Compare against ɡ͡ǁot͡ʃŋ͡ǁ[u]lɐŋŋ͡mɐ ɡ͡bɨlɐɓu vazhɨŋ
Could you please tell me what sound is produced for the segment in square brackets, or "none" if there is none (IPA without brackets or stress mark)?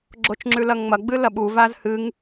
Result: ʉ